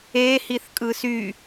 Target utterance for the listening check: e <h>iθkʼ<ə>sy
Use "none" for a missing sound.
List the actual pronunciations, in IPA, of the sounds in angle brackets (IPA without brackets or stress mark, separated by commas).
h, ɯ